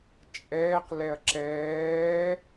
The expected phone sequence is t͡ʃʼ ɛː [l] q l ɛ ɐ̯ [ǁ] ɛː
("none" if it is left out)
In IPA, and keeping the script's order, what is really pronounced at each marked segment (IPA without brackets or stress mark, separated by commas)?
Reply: none, ǁ